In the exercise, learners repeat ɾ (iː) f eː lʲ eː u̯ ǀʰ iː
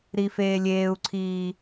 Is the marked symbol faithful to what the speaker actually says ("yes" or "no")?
no